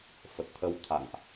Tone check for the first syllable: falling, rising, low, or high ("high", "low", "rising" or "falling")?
low